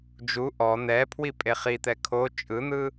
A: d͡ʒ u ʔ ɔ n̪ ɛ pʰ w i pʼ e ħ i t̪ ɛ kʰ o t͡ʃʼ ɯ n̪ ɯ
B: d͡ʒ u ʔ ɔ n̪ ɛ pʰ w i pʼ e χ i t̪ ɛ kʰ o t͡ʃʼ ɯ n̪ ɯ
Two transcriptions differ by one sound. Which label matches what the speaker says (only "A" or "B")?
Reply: B